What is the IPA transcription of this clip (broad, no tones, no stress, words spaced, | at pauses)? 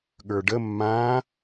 ɠə˞ɖə mːã